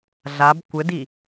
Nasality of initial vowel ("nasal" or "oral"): oral